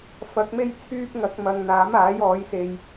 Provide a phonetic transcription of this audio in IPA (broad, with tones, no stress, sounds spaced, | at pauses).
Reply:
f ɐ˨˥ k̚ m e˥ j t͡sʰ yː˥ p̚ ŋ ɐ˨˥ k̚ m ɐ˨ ŋ n̪ aː˨˥ m aː˨˥ j ɔː˨˥ j s e˧ j